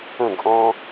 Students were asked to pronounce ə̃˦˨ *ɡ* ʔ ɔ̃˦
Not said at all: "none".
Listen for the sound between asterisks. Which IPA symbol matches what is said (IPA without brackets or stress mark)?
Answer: ɡ